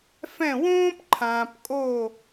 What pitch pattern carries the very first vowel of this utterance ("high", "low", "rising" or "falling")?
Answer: falling